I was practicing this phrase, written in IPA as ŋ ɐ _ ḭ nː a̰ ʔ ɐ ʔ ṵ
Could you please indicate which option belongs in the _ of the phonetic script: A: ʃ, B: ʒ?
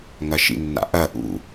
A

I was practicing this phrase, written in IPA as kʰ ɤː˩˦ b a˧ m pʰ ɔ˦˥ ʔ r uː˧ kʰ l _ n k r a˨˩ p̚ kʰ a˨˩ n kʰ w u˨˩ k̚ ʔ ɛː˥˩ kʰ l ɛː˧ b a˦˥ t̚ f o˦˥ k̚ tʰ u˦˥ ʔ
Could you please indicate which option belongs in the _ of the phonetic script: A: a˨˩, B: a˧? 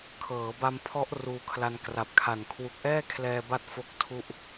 B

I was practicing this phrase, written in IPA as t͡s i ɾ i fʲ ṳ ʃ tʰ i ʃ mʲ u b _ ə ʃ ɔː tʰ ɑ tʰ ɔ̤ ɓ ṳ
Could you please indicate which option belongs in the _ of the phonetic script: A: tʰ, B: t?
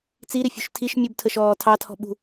A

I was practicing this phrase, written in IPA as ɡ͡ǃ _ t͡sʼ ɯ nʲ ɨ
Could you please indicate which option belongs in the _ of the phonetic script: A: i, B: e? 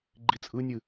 A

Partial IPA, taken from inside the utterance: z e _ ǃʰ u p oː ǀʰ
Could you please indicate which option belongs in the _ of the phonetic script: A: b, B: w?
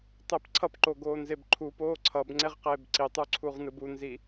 A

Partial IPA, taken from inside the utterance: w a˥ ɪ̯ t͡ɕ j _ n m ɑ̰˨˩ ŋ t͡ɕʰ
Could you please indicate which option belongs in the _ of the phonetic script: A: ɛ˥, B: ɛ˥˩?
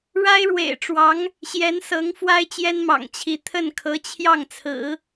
A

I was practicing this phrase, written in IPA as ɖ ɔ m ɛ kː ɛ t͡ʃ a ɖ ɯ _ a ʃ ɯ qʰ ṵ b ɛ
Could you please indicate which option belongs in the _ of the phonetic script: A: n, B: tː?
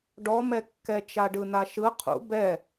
A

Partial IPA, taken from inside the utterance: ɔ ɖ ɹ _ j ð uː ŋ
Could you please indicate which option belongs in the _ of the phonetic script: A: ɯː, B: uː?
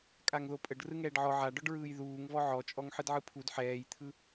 A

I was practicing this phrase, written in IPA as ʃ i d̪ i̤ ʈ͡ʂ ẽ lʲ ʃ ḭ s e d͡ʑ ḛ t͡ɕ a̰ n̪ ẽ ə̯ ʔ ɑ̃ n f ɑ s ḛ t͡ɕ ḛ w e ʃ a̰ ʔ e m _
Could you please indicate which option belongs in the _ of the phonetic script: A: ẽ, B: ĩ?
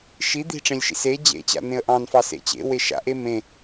A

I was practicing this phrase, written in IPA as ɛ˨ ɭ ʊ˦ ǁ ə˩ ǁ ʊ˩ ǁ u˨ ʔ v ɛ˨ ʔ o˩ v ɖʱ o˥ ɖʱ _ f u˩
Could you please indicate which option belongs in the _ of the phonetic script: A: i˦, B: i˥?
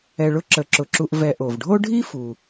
B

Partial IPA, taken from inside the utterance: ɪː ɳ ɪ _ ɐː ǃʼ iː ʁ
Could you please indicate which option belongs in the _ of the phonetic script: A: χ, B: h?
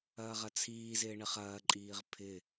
A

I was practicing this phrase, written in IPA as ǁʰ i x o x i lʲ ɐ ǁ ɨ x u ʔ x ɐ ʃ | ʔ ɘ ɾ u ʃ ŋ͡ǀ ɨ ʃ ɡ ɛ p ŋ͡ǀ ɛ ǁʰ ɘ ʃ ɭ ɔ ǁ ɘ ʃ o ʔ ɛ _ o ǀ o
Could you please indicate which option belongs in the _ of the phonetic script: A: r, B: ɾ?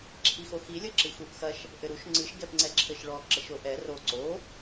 A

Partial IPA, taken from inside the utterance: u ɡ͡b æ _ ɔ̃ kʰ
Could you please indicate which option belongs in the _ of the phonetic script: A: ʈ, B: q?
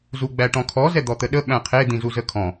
A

